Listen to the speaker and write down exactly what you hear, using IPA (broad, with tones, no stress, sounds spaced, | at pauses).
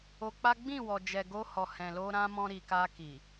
o˧ k͡p a˦ ɡ͡b ĩ˦˨ w ɔ˨ d͡ʒ ɛ˨ ɡ o˧ h ɔ˨ h ɛ̃˨ l o˧ ɾ ã˦ m ɔ̃˧ ɾ i˨ k a˧ k i˨